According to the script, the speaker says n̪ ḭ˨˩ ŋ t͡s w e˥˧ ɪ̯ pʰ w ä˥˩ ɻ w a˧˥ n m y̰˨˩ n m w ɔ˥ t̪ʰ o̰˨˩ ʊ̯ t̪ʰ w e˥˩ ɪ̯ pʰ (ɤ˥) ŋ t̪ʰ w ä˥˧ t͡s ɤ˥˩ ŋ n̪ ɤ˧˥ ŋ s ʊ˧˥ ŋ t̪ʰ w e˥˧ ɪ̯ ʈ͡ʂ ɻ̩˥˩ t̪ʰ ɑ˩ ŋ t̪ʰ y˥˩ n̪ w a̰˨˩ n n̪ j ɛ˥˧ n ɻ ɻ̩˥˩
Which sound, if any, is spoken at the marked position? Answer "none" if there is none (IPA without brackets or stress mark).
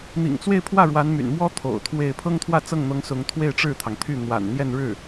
ɤ˥